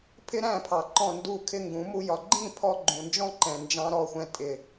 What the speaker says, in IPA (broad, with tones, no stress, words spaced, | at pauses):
pʰɪ˦ɾæ̃˦˨pʰɑ˨ ǃɔ̃˦˨ndu˦˨kʰɪ˦ ŋɡũ˨˦mu˦jɒ˧ ɡ͡ǃĩ˦˨ pʰɔ˦ ɡ͡ǃũ˨nd͡ʒɔ̃˦ǃɛ̃˨nd͡ʒɑ̃˧ ɾɔ˦˨xʷɛ̃˧ tʼɪ˨